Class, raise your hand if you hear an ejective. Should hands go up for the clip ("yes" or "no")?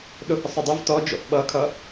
no